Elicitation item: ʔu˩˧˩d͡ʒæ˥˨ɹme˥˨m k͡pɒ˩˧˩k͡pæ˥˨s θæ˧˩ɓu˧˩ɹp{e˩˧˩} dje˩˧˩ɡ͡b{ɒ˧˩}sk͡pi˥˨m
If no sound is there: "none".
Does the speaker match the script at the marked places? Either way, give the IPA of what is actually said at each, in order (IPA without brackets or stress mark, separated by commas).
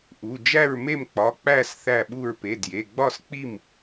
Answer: e˩˧˩, ɒ˥˨